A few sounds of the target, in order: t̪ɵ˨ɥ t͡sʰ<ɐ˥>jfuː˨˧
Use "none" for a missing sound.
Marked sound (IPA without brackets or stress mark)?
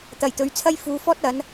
ɐ˥